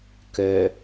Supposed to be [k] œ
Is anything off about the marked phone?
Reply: no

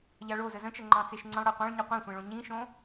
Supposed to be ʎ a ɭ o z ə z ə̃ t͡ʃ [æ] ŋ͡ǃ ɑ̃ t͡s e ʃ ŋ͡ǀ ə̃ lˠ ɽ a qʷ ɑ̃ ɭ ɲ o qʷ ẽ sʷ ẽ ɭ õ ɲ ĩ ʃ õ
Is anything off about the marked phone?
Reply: yes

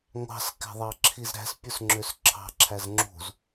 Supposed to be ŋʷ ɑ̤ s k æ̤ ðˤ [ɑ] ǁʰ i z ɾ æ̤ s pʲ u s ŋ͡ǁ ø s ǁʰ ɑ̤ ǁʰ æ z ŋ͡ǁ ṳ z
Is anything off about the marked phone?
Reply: no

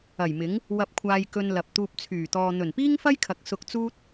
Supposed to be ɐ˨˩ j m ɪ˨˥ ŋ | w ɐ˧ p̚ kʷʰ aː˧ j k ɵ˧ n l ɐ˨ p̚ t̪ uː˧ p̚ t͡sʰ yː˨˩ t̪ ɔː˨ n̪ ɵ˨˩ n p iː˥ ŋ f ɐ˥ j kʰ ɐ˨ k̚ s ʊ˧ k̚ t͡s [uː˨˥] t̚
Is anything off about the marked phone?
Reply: yes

